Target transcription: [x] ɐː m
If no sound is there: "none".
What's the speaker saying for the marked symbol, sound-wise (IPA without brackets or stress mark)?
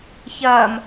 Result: ç